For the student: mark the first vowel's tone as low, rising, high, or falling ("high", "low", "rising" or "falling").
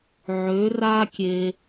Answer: rising